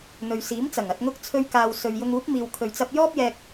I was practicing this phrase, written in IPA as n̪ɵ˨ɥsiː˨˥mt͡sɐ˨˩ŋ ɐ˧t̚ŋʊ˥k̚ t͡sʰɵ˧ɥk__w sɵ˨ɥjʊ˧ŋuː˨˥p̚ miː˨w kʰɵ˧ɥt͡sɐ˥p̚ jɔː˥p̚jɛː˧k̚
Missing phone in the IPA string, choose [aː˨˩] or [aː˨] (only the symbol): aː˨